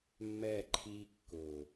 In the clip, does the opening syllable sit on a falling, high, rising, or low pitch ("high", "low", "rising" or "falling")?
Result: falling